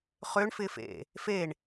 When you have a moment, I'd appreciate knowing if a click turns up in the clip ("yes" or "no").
no